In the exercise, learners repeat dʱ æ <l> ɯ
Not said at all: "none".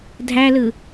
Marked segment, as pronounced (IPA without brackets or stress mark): l